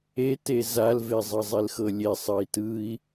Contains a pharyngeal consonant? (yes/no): no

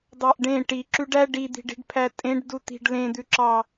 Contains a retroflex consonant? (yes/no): yes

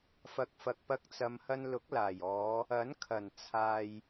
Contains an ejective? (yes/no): no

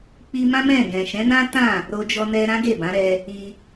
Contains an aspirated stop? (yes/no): no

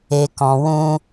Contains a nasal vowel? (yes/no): yes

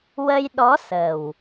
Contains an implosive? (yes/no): yes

